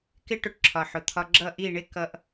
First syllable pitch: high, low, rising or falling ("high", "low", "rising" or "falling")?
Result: high